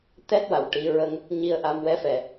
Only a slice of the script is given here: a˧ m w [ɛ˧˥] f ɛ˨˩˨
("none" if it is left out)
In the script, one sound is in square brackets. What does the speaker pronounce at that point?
ɛ˧˥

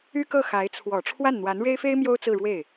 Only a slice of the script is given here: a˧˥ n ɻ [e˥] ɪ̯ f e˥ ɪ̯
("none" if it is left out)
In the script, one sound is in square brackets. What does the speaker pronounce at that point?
e˥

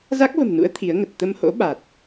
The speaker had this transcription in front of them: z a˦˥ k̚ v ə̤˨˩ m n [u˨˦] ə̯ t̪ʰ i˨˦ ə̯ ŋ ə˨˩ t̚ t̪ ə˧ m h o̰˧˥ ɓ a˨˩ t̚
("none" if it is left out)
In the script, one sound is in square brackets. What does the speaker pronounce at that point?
ṵ˧˥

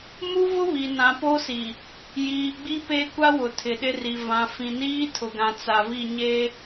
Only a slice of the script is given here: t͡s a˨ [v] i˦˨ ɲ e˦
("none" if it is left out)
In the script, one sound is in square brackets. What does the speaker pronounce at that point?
v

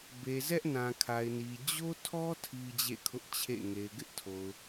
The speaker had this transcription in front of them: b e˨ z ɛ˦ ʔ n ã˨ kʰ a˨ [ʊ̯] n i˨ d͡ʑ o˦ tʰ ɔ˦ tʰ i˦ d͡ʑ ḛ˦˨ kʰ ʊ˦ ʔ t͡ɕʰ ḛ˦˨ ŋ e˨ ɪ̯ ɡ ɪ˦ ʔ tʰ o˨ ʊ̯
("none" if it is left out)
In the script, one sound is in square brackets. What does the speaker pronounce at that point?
ɪ̯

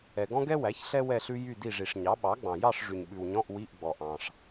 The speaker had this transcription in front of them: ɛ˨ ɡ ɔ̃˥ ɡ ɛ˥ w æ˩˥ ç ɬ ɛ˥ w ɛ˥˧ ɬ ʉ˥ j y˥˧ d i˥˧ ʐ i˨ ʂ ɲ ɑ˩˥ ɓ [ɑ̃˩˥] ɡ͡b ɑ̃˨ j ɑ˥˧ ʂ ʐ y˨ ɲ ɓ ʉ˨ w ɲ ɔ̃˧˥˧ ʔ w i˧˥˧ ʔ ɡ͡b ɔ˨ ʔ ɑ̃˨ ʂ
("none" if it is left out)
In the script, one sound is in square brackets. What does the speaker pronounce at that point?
ɑ˩˥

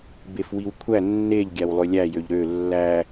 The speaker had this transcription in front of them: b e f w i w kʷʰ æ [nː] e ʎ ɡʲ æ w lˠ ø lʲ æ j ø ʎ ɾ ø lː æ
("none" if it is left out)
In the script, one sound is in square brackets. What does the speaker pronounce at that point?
nː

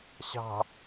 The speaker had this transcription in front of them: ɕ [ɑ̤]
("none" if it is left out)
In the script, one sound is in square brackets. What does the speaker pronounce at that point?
ɑ̤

